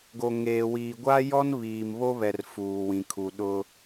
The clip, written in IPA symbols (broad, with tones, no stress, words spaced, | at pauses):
ɡo˨ŋeː˨wiː˨ ɡʷa˦jɔ˦n βiː˨mβo˦βɛ˨r fuː˨wĩ˨kʰu˨ ɗʊ˦